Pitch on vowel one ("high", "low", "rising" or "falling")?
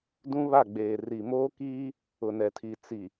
high